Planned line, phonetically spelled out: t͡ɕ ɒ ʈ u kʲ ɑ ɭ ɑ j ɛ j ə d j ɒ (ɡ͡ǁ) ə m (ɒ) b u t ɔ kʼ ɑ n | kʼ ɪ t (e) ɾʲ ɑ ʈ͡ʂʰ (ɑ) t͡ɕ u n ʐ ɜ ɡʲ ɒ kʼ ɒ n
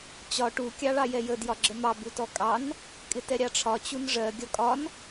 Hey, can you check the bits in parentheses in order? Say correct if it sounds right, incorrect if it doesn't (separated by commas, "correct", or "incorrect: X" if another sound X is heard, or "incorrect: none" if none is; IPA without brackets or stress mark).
correct, incorrect: ɑ, incorrect: ɛ, incorrect: ɒ